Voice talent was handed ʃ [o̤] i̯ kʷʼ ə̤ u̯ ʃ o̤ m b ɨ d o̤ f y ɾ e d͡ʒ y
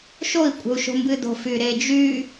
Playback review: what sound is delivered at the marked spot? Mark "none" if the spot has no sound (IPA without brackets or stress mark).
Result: o